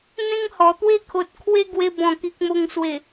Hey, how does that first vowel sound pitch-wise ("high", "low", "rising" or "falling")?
high